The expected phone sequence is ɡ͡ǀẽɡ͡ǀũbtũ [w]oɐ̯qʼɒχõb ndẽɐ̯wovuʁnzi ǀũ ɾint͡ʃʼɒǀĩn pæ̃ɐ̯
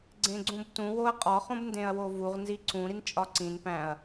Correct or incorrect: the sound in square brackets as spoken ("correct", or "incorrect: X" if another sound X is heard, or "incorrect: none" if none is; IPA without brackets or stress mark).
correct